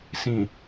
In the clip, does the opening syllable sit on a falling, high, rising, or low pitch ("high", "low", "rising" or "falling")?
low